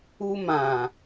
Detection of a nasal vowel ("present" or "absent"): present